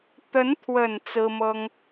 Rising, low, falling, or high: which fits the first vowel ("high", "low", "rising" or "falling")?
rising